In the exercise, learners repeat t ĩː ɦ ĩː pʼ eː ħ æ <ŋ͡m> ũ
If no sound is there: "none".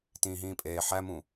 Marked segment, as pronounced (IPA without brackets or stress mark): m